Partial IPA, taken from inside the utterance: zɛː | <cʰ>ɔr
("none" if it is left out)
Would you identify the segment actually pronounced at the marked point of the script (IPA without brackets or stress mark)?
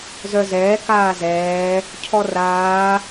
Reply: cʰ